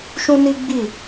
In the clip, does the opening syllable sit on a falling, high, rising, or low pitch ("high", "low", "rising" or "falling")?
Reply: high